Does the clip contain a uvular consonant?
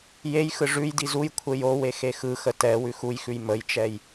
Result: no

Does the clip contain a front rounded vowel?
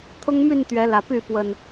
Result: yes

